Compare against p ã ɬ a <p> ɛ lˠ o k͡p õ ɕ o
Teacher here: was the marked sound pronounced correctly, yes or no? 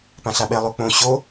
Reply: no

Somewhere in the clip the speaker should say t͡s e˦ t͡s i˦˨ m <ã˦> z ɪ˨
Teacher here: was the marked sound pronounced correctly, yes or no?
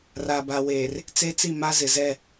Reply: no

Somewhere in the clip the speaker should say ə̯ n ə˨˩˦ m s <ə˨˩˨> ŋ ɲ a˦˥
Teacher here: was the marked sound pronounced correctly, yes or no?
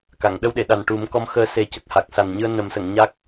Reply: yes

